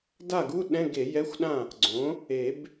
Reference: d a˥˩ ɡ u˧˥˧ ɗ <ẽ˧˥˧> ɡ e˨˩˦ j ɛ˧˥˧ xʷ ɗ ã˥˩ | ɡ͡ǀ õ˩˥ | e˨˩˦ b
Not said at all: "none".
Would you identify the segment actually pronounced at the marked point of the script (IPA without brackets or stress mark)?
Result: ɛ̃˧˥˧